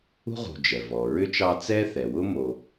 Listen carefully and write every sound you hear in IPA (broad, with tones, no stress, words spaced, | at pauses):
ṳ˥ʁṳ˨ d͡ʒɛ˩vɔ˩ɹʏ˥t͡ʃɑ˦ t͡sɛ˥θɛ˩wʊ˥ mo˨